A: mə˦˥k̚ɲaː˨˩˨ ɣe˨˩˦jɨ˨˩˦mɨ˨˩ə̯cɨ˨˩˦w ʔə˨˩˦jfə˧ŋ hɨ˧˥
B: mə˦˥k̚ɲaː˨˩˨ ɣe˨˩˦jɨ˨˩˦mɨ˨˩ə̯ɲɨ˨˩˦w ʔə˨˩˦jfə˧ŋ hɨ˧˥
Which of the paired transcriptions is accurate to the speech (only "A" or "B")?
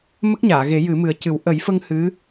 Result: A